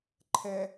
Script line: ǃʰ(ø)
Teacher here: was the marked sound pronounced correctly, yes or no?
no